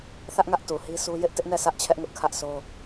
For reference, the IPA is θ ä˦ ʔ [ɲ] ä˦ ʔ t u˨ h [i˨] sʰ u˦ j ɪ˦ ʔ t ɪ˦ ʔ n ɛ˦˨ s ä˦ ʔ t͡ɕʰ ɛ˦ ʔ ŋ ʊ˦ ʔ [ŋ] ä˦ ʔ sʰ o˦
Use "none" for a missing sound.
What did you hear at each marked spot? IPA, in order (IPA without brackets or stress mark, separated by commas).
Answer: ŋ, i˦, kʰ